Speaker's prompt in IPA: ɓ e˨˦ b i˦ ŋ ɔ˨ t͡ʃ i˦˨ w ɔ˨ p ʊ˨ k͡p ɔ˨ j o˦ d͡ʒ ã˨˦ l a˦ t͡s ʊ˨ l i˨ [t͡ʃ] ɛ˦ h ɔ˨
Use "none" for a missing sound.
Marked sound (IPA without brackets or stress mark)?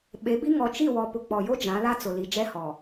d͡ʒ